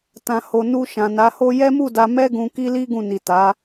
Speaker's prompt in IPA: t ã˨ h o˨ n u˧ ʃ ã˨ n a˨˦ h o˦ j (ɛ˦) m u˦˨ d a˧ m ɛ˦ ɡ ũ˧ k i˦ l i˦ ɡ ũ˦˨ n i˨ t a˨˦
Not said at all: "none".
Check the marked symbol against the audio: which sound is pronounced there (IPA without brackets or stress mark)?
ɛ˦